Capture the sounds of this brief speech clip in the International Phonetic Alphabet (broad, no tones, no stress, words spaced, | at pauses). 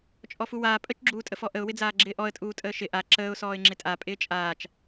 t͡ʃʼɔfuwaː pʼət͡ʃɡ͡ǁuːtʼəfɔ ʔəʊ̯wɪd͡zaː ɡ͡ǁɪːʔɔə̯tʼuː tʼəːʃɪ ʔa ǁəːʊ̯sɔːɪ̯ ŋ͡ǁɪtʼa pʼɪːt͡ʃʼaːt͡ʃ